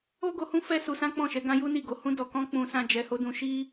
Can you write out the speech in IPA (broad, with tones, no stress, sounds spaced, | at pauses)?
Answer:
o˦ ɡ o˧ h ũ˦ f ɛ˦ s u˧ s ã˦ k͡p ɔ̃˦˨ ʃ ɛ˨˦ ɡ ã˦ j u˦ n i˦˨ ɡ o˨˦ h ũ˧ d ɔ˨ k ɔ̃˧ k͡p ũ˧ s ã˦ d͡ʒ ɛ˧ h o˦ d ũ˧ ʃ i˦